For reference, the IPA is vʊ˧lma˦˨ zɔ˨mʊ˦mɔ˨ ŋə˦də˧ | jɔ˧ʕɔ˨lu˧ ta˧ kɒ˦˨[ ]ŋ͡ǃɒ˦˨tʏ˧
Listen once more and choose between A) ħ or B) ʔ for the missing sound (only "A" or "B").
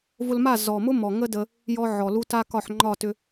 A